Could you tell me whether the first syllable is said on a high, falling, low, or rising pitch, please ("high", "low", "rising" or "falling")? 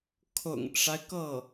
low